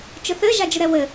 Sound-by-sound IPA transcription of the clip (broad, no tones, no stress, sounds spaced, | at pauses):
t͡ʃ ʊ θ ɘ ʒ a d͡ʒ ʊ ɾ ɛ w ɘ